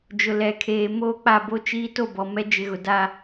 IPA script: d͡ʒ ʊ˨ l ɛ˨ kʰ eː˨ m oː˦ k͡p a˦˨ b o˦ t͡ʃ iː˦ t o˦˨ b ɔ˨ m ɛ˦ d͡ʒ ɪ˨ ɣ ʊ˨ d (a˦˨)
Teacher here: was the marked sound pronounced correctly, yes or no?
no